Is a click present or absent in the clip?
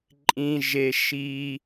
present